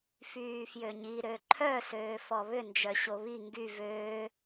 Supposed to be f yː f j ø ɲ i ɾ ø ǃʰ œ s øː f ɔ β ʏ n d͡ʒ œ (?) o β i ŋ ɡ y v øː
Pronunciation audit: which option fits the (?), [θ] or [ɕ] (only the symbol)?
ɕ